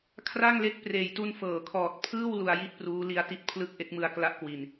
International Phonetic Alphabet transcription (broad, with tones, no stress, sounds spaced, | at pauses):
kʰ r a˥˩ ŋ l e˦˥ k̚ p r eː˨˩ j t u˧ n f ɤː˩˦ kʰ ɔː˨˩ t̚ pʰ ɯː˥˩ w l u˧ a̯ j i˥˩ t̚ p r uː˦˥ l i˧ a̯ t i˦˥ t̚ pʰ l ɯ˥˩ k̚ ʔ e˦˥ k̚ m ɯ˧ a̯ k l a˦˥ ʔ k w i˨˩ n